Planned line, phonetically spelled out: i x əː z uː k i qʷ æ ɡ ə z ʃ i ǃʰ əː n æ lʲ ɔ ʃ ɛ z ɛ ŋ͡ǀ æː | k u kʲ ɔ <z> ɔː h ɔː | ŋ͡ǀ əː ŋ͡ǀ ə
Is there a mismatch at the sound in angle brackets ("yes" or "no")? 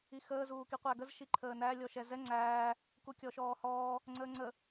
yes